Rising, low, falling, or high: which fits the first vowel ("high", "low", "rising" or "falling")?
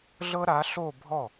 high